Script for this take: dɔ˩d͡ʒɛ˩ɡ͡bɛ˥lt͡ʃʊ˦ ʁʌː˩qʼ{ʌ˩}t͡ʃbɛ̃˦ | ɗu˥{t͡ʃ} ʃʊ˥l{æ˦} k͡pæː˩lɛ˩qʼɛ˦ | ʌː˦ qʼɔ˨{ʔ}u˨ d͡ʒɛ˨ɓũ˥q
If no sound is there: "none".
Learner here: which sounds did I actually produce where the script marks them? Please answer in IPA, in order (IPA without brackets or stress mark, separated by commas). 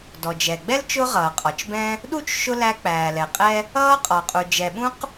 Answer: ɔ˩, t͡ʃ, æ˦, qʼ